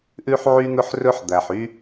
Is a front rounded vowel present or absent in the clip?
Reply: present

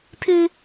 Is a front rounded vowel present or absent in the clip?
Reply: present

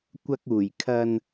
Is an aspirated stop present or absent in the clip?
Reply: present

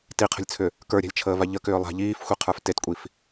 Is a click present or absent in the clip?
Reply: absent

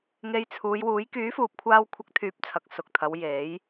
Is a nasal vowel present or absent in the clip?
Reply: absent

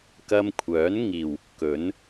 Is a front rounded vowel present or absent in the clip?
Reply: present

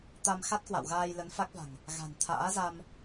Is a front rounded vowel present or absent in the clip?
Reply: absent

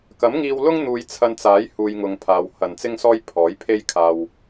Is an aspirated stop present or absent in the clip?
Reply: present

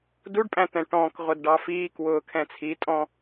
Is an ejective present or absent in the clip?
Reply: present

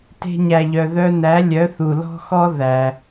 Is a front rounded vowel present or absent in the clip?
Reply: present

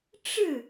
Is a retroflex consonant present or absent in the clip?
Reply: present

